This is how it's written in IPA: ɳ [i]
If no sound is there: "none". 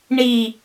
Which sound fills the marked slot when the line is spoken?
i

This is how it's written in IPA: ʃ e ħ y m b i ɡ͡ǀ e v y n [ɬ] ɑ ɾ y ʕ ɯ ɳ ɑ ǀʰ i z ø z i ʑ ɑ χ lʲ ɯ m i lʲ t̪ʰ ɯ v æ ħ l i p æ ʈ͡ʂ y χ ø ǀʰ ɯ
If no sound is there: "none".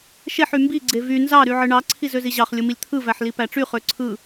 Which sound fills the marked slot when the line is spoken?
z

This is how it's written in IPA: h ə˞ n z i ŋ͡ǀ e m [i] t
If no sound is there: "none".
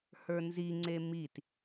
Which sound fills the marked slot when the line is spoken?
i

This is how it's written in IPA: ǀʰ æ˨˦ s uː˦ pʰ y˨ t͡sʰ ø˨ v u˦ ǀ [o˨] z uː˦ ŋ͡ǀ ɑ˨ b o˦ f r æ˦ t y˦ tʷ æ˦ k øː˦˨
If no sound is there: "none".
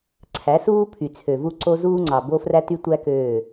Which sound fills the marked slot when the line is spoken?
o˦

